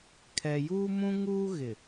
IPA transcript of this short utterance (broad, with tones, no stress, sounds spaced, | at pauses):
kʰ ɛ˨ j uː˦ m ũ˦ ŋ uː˦ ɣ ɪ˨